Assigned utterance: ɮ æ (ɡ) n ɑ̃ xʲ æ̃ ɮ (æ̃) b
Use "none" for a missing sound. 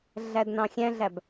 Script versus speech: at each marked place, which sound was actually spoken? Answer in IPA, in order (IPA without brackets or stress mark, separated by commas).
d, æ